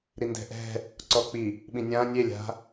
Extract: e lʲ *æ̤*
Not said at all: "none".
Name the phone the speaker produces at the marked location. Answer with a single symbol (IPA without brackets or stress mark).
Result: a̤